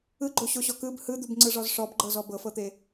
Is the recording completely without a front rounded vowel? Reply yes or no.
yes